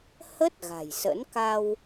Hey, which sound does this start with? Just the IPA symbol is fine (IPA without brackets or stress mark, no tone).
h